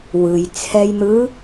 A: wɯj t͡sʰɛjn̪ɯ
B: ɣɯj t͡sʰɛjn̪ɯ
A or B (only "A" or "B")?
A